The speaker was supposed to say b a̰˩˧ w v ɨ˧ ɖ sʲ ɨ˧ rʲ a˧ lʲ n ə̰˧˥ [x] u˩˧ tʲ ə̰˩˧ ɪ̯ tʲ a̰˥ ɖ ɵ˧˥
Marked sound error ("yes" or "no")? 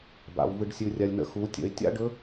no